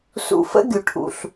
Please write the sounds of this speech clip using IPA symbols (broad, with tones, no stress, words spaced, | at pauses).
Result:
sṵ˧ fə̰˦ɡʲu˨ ʈʰṵ˨ɬ